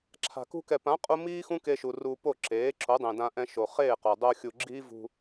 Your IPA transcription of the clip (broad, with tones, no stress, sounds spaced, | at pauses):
ǁʰ a̤˨ k ṳ˧ k ɛ˨ p ã˨˦ qʼ u˧ m iː˦ x ũ˦ k e˧ ʃ u˨ r u˧ p o˦˨ ǁ eː˨˦ ǁ o˨˦ dˤ ẽ˨ d ã˧ ʔ ɛ̃˧ ʃ o˨ χ eː˦˨ q o˨ dˤ o˧ xʲ u˨ ɡ͡ǁ iː˦ v ṳ˧